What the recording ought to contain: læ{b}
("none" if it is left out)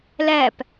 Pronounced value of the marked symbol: p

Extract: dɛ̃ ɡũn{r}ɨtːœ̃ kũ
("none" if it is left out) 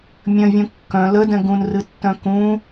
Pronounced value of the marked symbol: r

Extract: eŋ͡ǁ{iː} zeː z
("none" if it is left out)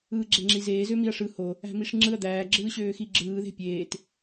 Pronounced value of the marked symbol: i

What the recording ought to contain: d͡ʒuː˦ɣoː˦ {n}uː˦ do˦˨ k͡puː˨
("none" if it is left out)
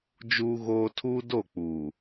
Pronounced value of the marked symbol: tʰ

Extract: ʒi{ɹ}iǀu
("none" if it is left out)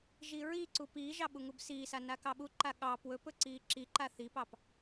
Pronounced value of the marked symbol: ɹ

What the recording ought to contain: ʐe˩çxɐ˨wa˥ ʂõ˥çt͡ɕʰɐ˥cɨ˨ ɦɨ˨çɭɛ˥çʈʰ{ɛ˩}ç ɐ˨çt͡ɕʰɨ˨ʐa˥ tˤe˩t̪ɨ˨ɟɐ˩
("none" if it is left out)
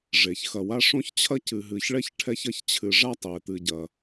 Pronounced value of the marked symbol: ɛ˦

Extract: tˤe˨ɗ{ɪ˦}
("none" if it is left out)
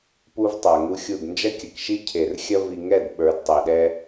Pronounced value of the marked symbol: ɛ˦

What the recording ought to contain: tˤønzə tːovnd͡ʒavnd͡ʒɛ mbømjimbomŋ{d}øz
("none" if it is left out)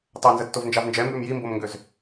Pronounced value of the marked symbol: ɡ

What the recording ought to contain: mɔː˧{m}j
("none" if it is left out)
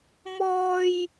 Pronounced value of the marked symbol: none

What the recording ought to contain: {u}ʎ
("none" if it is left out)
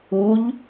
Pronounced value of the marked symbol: u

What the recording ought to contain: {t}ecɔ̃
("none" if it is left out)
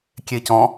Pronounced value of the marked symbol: kʲ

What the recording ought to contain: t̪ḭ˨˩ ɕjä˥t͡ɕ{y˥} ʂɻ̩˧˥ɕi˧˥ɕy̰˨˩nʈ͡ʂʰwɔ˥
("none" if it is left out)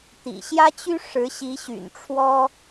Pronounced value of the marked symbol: y˥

